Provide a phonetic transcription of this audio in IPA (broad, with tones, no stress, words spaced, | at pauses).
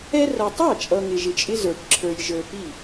ɛ˦ rʌ˨tˤɑ˥˩t͡ʃʼʌ˨ ŋɪ˨ʒɪ˨t͡ʃʼɪ˦ zə˞˨ʈǁʰə˞˨j ʒə˞˨pi˥˩